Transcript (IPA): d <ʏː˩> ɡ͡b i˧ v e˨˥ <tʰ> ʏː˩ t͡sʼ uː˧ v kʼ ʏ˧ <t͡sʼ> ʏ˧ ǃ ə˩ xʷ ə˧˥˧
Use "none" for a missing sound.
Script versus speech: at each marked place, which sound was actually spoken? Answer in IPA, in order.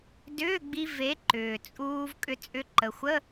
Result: ʏː˧˥˧, ǃ, t͡sʼ

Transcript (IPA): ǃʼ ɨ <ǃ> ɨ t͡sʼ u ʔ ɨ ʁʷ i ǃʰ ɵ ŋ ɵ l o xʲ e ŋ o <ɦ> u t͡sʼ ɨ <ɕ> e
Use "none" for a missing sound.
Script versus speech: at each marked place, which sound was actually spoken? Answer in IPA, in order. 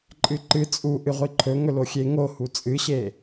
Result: ǃ, h, ɕ

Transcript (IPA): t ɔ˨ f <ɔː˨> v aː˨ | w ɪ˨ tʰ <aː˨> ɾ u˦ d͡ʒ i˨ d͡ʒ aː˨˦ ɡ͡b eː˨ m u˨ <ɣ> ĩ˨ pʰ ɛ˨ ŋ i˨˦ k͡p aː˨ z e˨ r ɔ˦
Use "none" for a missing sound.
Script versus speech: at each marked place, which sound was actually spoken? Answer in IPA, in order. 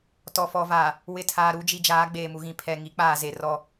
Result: ɔ˨, aː˨, ɣ

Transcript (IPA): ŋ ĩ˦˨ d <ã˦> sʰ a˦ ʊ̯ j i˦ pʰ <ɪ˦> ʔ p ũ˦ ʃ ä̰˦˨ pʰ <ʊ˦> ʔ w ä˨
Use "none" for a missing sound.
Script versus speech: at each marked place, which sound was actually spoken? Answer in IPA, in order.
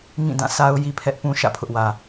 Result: ã˦˨, ɛ˦, ʊ˦

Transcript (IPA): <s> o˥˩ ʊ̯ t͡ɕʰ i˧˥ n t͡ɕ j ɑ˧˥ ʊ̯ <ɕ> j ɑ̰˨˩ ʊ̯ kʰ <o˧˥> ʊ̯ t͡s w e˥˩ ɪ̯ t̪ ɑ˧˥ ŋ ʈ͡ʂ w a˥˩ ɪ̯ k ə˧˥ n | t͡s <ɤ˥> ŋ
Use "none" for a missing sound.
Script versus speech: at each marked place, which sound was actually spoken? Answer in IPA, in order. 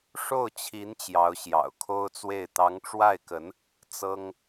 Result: ʂ, ɕ, o˥, ɤ˥

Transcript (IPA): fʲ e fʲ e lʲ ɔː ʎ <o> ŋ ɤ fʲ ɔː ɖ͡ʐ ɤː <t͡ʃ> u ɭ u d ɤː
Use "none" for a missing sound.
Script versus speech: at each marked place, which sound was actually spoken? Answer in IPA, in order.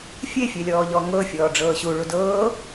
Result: ɔ, ɕ

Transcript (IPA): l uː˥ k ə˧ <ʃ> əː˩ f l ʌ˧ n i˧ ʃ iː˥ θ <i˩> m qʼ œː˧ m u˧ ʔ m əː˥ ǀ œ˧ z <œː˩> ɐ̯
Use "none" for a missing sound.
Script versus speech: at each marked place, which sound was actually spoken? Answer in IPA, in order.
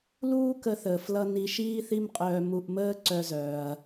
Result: θ, i˥, œː˩

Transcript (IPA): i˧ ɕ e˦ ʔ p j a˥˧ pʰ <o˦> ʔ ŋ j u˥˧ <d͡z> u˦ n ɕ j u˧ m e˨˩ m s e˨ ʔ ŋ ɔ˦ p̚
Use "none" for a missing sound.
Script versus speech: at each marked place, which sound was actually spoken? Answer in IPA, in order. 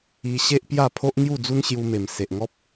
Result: o˦, d͡z

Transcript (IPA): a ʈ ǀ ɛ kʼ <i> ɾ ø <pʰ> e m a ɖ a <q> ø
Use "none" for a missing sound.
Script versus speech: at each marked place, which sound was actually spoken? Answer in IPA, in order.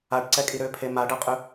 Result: i, pʰ, qʼ

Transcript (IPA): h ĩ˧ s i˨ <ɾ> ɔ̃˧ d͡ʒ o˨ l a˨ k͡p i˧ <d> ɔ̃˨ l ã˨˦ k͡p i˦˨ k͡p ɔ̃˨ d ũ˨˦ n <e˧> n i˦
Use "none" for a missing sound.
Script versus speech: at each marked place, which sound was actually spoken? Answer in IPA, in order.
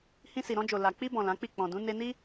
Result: ɾ, b, e˧

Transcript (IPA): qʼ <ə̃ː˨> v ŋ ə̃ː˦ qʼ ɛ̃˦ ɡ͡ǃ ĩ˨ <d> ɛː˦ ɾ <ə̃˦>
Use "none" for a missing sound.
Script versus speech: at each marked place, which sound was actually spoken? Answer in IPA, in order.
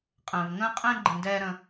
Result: ə̃ː˨, d, ə̃˦

